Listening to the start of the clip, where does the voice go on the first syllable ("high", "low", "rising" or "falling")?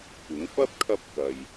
rising